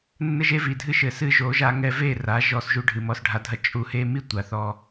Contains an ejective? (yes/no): yes